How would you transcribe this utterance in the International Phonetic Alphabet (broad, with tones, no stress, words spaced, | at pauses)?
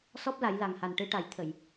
sɔ˦˥p̚la˨˩˦jla˨˩ŋha˨˩n ʈɨ˧˥ʈa˨˩˦j t̪ʰə˨˩˨j